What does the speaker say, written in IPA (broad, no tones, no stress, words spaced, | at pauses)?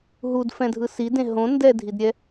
ɦudfɛ̃dʱɯ sidẽ ɦõ ndɛdʱidɾʲɛ